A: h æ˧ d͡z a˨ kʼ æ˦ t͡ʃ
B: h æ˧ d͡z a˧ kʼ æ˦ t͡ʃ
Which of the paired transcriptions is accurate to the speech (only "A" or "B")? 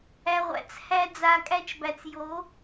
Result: B